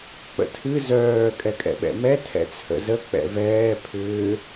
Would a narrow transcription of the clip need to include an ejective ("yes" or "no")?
yes